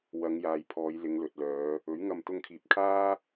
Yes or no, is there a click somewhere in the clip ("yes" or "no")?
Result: no